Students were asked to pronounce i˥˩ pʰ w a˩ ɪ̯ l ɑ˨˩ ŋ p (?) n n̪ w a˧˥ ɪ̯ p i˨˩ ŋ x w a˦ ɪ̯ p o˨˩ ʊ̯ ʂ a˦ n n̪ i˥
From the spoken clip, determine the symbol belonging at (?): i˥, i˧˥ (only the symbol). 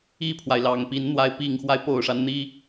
i˧˥